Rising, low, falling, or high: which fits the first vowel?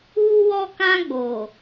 high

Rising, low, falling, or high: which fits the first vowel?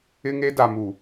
high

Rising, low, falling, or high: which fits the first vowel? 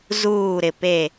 falling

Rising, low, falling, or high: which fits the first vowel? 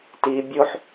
low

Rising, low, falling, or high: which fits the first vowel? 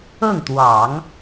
falling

